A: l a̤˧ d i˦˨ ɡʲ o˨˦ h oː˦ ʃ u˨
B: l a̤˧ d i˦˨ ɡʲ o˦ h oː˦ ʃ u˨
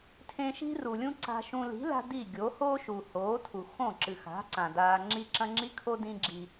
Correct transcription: A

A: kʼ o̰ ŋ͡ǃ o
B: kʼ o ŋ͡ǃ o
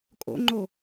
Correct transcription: A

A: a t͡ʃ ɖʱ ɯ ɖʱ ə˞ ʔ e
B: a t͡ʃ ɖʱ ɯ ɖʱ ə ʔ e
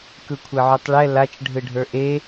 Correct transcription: A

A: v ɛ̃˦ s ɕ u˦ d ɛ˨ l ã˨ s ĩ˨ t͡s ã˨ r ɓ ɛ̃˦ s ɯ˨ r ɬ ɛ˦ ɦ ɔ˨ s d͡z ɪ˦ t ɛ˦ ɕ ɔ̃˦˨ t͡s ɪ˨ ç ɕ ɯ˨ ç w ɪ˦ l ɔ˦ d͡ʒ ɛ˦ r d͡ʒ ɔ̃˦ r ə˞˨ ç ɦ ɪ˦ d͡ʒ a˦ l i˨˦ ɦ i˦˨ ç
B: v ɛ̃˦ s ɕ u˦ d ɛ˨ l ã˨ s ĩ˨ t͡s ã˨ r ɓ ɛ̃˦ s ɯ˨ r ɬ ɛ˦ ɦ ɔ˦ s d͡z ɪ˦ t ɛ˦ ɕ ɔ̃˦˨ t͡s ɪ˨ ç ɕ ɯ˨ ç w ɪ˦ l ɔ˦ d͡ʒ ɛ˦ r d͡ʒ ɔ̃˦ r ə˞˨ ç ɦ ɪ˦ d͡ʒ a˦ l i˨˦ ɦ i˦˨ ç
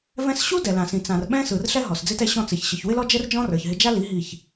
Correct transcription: A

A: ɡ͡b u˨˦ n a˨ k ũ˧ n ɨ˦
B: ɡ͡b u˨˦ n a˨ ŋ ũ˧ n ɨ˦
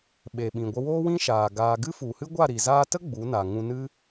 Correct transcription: B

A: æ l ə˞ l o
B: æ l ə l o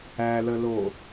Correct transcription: B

